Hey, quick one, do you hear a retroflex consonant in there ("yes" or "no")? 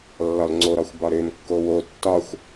no